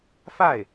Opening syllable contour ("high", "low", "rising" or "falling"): falling